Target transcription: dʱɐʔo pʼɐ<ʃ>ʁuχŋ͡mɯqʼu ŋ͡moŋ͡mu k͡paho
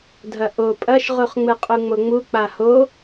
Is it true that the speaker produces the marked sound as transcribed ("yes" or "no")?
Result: yes